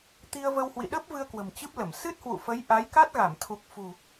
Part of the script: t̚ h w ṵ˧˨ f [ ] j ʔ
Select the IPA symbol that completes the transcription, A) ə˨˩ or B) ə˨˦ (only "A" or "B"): B